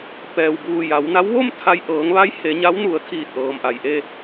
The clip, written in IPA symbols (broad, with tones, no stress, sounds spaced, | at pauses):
p ɛː˩ w b uː˧˩ j a˩˧ w n a˧˥ w ʋ o˥˨ m t̪ʰ a˧ j ʔ ɤː˩˧ ŋ ʋ a˧˥ j h e˩˧ ɲ a˧˥ w n u˩˧ ə̯ t̪ʰ iː˧˩ t̚ ʔ ɤː˩ m ʔ a˩ j ʔ e˥˨